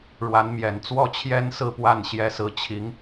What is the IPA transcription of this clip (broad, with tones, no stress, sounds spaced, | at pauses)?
ɻ w a˧˥ n m j ɛ˨˩ n t͡s w ɔ˥˩ t͡ɕʰ j ɛ˥ n s ɹ̩˥˧ p w a˥˩ n ɕ j ɛ˧˥ s ɹ̩˧˥ t͡ɕʰ i˧˥ ŋ